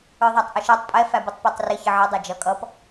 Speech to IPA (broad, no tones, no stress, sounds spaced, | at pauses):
ə˞ ðˤ æ tˤ ʔ ʊ ʃ ɛ tˤ pʼ ɛ f æ b ə tˤ p ə˞ tˤ r ɪ ç ə ʕ ɛ dˤ ɛ d͡ʒ ʌ kʼ ʌ p